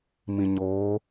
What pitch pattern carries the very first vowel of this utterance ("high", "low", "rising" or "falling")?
low